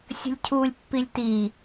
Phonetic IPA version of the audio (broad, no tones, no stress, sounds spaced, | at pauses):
sʲ ə̤ lʲ cʰ uː lʲ pː i lʲ t i